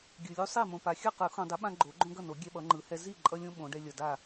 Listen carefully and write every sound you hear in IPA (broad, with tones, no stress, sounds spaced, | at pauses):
ɡʲ ɯ˨ lʲ u˦ sˤ e˥˨ m õ˨ p a˨ xʲ ʌ˥˨ q ɯ˨˩˦ x õ˨ dˤ e˨˦ ɓ ã˦ ɡ͡ǃ o˨˩˦ ɡ͡ǃ õ˦ ɡ ʌ˥˨ n o˨˩˦ ɡʲ ɛ˦ ɓ ʌ˨˦ ŋ͡ǃ ɯ˨˩˦ h ɛ˦ z i˥˨ ǃʼ ʌ˦ lʲ õ˦ ɓ õ˨˦ ɖ ɛ˦ lʲ ʌ˨ d a˥˨